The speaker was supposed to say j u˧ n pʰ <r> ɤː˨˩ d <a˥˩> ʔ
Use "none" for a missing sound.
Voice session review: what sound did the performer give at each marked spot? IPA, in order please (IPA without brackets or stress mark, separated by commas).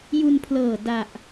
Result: l, a˨˩